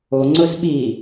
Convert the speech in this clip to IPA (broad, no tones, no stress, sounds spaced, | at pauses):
o ŋ͡ǀ ʊ z ɓ i